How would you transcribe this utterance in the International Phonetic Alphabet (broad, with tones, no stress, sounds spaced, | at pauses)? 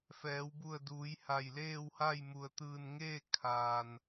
f ɛː˩˧ w b u˧˩ ə̯ d uː˩˧ j h a˧˩ j l eː˥˨ w h a˥˨ j m u˩ ə̯ t̪ ɯː˧˩ n ŋ eː˥˨ kʰ aː˩ n